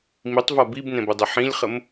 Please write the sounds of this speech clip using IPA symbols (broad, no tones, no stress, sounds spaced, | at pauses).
m i tˤ v ɒ b i b n ɛ̃ b ə dˤ ʏ ħ ĩ lʲ χ ə m